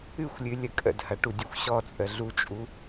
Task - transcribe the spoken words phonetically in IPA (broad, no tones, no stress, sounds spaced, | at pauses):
ɨ xʷ lʲ ɨ lʲ ə kʼ ə̰ d h ɐ ʈ u dʲ ɐ xʷ ɕ ɔ t͡sʼ ə ɮ u t͡ʃʼ u